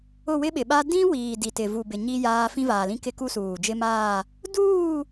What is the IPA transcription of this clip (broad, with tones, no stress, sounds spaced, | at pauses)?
ʊ˦˨ w ɪ˦ ɓ ɪ˨ ɓ a˦ d ĩ˦ w iː˨ d i˨ t ɪ˨ v u˨ b ɪ˨ ɲ i˦ j aː˦ f ĩ˦ v aː˨ l ĩ˦ k ɪ˦ k u˦ s uː˨ d͡ʒ ɪ˦ m aː˦˨ | d uː˦˨